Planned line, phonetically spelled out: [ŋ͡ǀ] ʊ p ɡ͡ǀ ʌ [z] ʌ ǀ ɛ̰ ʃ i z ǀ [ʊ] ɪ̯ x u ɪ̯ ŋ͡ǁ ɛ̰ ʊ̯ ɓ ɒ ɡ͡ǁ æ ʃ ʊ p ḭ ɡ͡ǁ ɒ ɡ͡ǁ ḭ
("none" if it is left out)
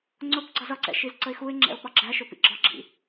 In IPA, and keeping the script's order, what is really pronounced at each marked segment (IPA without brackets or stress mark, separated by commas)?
ŋ͡ǀ, z, ə